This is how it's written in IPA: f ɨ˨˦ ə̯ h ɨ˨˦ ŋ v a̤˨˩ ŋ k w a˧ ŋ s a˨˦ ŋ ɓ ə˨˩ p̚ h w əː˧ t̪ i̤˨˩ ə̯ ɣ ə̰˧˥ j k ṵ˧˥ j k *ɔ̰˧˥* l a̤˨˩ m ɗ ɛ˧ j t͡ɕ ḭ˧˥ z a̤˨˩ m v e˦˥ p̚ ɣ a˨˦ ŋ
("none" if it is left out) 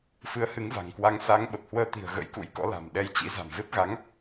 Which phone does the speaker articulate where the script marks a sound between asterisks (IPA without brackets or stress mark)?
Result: ɔ̰˧˥